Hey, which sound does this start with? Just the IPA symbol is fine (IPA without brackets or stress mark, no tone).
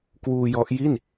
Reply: k